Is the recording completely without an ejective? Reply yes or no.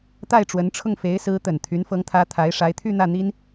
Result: yes